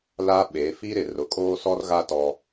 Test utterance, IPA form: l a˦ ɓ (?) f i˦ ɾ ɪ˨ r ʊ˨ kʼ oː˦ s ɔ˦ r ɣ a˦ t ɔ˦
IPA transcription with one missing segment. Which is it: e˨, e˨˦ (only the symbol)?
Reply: e˨˦